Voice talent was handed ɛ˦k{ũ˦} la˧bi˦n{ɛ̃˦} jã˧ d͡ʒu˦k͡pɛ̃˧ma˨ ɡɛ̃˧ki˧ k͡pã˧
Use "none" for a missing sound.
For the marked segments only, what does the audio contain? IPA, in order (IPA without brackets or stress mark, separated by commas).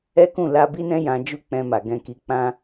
ũ˦˨, ɛ̃˦